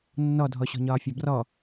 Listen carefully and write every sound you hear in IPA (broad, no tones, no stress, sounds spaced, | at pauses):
nː ɔ dʱ ɔ ɕ ɔ̤ ɲ ɒː fʲ ɒ b r ɔ